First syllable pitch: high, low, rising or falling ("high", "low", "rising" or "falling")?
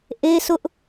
high